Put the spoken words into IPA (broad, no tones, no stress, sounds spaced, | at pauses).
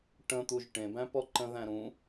ʈ ə̃ t̪ u ʒ ʈ ẽ b æ̃ p ɔ ǃ ə̃ ð æ̃ ɾ ũ